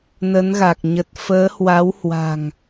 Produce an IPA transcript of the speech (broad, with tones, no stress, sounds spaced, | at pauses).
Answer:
n ə˨˦ n ɣ a˨˩ k̚ ɲ ə˨˩ t̚ f əː˨˦ h w a˨˦ w h w a̤˨˩ ŋ